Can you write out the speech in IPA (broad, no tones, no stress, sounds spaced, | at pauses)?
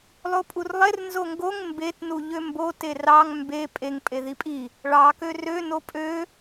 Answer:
lˠ o pʼ u r lˠ e r n z o ŋ ɡ o ŋ m b e t n u ʎ ø m b o t e r ɑ ŋ m b e pʼ e ŋ pʼ e ð i pʼ i | ɭ ɑ k ø r ø n o pʼ ø